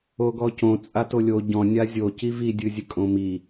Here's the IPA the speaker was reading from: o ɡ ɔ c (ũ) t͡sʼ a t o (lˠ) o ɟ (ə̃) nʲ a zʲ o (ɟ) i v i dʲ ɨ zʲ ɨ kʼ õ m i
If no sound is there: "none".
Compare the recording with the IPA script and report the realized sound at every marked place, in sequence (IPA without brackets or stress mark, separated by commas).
õ, lʲ, ɔ̃, c